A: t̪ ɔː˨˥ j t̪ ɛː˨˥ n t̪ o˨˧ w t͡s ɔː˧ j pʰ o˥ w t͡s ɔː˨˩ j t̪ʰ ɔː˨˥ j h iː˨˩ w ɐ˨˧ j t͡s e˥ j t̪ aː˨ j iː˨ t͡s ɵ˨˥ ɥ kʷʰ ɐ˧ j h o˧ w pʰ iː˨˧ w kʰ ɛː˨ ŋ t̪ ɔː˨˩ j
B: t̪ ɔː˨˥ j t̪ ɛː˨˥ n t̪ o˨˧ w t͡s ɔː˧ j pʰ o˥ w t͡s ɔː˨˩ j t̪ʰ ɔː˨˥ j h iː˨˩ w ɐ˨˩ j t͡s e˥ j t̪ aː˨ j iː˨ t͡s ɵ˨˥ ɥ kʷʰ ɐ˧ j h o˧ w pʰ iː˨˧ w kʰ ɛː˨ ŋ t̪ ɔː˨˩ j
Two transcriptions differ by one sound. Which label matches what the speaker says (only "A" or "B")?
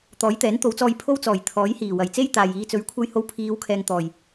B